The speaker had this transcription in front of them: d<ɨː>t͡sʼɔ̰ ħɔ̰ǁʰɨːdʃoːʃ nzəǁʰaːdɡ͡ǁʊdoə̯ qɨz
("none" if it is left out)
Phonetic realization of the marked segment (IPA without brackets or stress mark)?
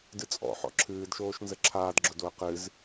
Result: ɨ